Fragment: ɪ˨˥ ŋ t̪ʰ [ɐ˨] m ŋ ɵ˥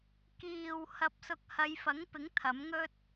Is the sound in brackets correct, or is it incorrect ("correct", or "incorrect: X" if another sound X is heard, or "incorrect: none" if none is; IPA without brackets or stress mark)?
incorrect: ɐ˨˥